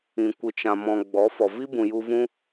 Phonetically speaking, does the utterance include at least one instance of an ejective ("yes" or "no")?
no